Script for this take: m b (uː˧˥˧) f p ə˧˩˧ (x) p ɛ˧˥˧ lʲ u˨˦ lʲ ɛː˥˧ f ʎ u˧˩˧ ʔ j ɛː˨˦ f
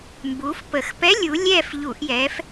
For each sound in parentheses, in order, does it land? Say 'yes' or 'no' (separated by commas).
no, yes